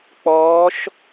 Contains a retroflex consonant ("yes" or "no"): no